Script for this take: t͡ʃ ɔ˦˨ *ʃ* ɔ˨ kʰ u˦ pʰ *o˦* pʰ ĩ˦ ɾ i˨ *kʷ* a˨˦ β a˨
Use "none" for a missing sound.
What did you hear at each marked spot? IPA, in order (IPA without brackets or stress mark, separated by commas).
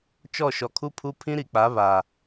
ʃ, u˦, k͡p